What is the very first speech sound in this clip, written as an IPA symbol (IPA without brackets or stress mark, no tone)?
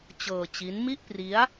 t͡ɕ